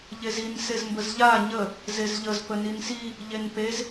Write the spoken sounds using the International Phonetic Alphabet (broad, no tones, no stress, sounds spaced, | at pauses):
ʎ e z i n s e z m b ə z ʎ a ɲ ə | z e z ʎ ə z p ə n i n s i | ʎ e n p e z